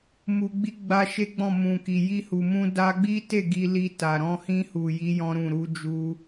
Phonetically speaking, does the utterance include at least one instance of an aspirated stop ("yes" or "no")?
no